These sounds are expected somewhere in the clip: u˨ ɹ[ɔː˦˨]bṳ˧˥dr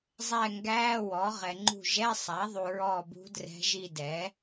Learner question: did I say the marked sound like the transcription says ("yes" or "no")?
yes